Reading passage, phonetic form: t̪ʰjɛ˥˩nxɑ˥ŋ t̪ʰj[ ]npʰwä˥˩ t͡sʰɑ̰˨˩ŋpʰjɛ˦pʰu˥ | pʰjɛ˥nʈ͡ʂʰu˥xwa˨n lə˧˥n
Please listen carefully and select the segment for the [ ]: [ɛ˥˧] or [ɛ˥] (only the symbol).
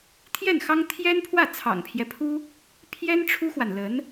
ɛ˥